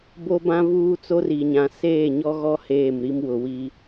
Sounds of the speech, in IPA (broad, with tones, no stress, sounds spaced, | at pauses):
b o˦ b ã˦ v uː˦ t͡s o˦ r i˨ ɲ ã˨ s eː˦˨ ɲ ɔ˦ ɣ ɔ˦ h eː˦˨ m ɾ i˦ m w ʊ˨ w i˦